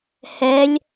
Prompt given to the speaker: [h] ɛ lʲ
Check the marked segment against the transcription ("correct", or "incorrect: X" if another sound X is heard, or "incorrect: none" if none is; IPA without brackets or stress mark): correct